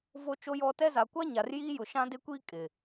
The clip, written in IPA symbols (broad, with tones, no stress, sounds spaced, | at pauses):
v o˦ t͡ʃ o˦ j ɔ˦ t ɛ˦ z a˨ kʷ a˦ ɲ a˨ r j iː˦ j ʊ˨ ʃ ã˦ d e˦ kʷ iː˦ kʼ ɪ˨